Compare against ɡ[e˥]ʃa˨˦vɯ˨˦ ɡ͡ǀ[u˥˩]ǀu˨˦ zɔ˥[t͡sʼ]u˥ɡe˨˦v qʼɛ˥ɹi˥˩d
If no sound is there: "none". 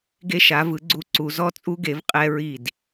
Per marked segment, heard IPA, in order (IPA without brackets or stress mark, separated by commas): e˥, u˥˩, t͡sʼ